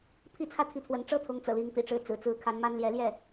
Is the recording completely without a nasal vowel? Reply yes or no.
yes